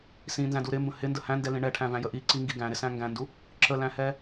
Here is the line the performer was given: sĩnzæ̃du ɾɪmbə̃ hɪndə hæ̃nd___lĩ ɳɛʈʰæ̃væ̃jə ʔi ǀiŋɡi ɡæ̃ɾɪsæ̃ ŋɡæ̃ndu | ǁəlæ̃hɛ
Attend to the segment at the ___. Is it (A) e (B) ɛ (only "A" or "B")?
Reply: B